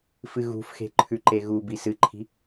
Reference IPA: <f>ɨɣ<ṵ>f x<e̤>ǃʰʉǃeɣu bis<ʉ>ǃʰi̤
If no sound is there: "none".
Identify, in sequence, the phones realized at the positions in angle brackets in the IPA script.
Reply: f, ṳ, e̤, ɨ

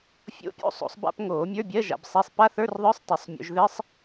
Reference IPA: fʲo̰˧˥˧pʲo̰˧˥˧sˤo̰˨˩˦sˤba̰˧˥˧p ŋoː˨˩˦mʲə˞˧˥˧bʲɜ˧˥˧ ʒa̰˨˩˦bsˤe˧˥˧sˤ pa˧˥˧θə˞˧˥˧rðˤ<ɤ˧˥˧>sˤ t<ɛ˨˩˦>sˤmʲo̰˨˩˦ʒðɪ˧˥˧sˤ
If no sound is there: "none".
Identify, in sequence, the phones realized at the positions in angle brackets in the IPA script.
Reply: ə˞˧˥˧, ɛ˨˩˦

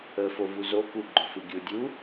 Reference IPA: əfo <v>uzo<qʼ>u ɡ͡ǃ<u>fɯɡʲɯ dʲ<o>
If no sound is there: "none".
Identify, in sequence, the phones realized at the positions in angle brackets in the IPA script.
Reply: v, k, ʊ, u

